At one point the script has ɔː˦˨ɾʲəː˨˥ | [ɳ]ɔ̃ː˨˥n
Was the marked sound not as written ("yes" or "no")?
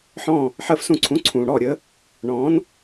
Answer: no